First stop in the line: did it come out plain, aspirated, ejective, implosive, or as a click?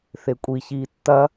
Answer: ejective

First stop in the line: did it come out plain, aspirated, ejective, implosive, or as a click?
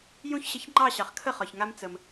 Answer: click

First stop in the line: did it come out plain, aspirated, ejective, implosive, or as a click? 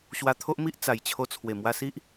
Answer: aspirated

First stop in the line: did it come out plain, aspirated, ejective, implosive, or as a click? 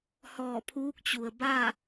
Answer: aspirated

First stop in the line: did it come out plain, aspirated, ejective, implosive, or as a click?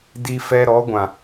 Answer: plain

